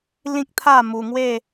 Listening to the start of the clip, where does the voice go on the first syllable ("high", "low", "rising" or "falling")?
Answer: high